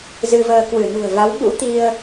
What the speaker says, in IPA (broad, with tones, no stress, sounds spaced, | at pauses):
z ɨ˧ v əː˧ k w ɨ˧˩ n ṳ˨˩ ə̯ v a˨˦ w ɓ ṵ˧˥ t̪ i˧ ə̯